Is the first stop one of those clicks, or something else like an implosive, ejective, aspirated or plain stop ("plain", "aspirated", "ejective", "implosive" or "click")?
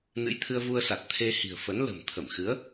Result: aspirated